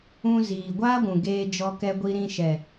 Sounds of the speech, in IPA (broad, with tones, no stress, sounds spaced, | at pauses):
ũ˧ z iː˨ ɡʷ aː˦ ɡʷ ũ˨ ɡ eː˧ d͡ʒ ɔ˧ k ɛ˧ ɡʷ i˧ ɾ ĩ˧ ʃ ɛ˨